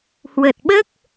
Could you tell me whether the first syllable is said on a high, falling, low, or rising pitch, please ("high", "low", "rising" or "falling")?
low